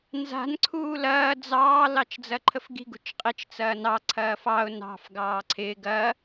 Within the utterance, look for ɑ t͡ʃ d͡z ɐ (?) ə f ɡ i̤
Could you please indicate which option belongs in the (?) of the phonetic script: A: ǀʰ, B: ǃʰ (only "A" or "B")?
B